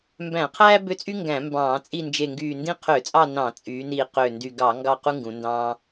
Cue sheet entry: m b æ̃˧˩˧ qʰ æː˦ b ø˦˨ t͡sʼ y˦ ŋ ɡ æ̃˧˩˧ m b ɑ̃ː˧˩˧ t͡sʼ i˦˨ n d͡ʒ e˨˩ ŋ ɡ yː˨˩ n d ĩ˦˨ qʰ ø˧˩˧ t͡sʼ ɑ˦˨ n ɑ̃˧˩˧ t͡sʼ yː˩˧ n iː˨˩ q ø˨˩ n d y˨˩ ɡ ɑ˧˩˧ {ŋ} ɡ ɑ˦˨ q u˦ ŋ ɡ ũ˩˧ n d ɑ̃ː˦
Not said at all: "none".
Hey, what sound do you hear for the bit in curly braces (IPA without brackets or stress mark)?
ŋ